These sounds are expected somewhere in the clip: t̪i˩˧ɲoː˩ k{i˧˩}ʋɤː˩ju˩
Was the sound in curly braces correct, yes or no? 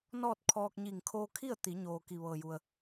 no